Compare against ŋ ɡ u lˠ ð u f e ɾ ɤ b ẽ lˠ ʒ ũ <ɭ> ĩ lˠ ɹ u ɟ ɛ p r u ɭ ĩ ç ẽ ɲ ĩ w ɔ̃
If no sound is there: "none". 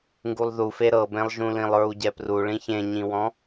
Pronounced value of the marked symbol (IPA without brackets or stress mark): l